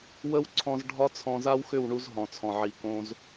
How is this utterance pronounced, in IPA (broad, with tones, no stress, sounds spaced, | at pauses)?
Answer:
w ə˦ w ǀʰ ɔ̃˧ z ɖʱ ɒ˦ t͡sʰ ɔ̃˧ z a˦ w x ʏ˦˨ w ɳ u˧ z ɦ ɔ̃˨ t͡sʰ ɔ̃˨ ʕ i˨ k õ˧ z